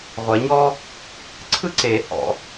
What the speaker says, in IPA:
ʁʷ ɛ˨˩˦ ɲ ɔ˥ | ǀʰ ɯ˥ ǀ e˨˩˦ h ɔ̰˨˩˦

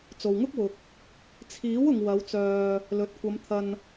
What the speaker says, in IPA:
t͡s o˨ w ŋ ʊ˥ k̚ w ʊ˨ k̚ | t͡sʰ iː˨˥ w ʊ˨ ŋ w ɐ˨˧ w t͡s œː˨ | l ɵ˨ t̚ kʷ ɐ˨˧ m t̪ʰ ɐ˧ n

